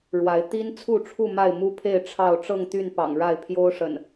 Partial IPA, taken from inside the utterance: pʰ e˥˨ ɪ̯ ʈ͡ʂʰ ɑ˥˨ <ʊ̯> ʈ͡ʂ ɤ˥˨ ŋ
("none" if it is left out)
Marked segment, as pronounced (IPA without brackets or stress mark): ʊ̯